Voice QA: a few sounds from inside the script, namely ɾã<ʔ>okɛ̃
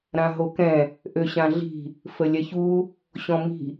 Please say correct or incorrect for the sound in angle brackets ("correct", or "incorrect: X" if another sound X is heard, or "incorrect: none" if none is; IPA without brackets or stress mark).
incorrect: ɦ